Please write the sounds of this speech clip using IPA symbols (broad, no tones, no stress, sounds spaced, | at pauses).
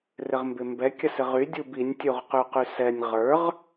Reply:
r ɪ ʁ m b ɪ m b ɛ kʲ ɐ s ɪ ʁ y dʲ u b i nʲ tʲ u ʁ q y q y s ɛ nʲ ʁ ə˞ ʁ